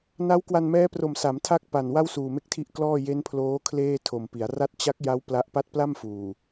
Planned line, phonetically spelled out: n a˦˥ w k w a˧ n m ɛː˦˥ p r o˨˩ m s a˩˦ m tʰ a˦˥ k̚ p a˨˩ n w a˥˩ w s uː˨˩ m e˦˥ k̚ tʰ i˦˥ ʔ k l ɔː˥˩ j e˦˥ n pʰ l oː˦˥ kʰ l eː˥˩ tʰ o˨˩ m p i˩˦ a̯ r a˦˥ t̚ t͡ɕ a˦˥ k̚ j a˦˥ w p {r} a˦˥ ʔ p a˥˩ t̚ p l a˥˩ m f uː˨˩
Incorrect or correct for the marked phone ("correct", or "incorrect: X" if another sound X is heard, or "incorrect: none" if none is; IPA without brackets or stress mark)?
incorrect: l